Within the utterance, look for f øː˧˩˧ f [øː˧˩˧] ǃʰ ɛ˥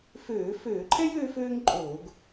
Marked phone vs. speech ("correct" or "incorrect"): correct